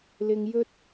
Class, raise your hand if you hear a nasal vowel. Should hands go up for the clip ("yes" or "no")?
no